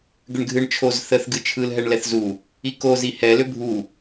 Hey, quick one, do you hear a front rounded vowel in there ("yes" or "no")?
yes